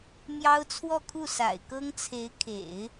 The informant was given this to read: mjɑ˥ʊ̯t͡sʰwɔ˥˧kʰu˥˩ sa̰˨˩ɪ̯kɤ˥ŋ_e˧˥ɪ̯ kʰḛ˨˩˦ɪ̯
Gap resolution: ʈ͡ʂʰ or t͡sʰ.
t͡sʰ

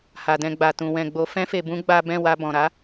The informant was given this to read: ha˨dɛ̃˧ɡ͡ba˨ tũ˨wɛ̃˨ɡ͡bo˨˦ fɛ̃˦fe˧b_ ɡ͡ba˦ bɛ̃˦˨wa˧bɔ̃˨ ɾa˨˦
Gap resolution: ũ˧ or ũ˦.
ũ˦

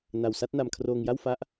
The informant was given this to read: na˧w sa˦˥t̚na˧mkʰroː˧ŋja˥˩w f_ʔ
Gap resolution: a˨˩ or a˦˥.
a˦˥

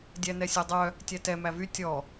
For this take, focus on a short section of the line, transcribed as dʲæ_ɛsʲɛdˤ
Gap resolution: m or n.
n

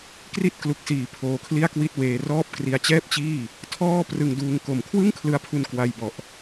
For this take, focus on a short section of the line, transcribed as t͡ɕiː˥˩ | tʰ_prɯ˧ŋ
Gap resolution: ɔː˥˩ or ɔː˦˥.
ɔː˥˩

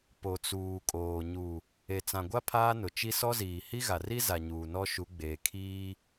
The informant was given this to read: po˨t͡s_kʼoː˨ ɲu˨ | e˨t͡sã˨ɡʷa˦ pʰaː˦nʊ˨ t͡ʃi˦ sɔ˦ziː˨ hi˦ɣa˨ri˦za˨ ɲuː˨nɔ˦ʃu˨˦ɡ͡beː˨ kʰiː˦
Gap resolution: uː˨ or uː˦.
uː˨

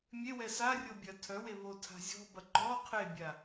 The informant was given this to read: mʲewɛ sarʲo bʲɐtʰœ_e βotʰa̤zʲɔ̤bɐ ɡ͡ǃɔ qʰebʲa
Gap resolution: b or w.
w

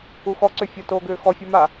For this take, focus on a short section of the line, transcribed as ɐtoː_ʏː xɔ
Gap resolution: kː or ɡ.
ɡ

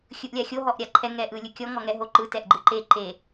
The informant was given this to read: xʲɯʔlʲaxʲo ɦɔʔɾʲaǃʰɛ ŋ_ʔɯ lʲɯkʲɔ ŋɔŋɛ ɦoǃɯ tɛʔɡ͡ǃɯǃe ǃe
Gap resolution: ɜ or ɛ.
ɛ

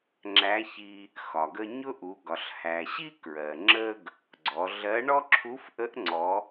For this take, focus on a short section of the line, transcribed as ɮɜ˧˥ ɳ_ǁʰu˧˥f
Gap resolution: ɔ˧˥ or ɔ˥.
ɔ˥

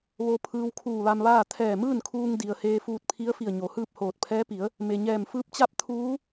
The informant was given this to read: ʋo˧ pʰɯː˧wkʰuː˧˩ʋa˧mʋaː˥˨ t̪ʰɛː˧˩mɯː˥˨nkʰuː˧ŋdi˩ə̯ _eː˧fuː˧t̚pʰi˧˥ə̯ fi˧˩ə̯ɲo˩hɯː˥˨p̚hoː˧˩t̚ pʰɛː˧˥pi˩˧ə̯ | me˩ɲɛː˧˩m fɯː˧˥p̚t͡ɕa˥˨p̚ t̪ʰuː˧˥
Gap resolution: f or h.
h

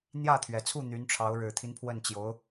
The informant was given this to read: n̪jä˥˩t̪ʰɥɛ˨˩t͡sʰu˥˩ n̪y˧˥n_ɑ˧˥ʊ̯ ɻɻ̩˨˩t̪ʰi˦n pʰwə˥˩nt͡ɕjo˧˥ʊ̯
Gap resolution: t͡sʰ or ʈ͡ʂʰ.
ʈ͡ʂʰ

